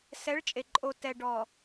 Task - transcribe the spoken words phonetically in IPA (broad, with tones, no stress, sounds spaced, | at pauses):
s ɛ˨˦ ɭ t͡ʃʼ e˨ ǃʼ o˨ t ɛ˨ ɖ ɔ˨